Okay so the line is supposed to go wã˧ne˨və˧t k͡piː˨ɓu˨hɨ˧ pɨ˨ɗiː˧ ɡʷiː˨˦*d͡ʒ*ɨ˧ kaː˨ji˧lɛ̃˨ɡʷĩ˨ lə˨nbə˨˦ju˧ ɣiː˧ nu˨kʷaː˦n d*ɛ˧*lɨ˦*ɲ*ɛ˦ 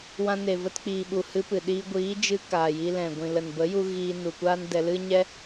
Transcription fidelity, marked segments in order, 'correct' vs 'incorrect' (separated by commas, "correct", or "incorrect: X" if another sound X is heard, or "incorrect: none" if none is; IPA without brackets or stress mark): correct, correct, correct